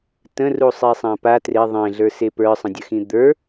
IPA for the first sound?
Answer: t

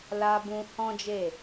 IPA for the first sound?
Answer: l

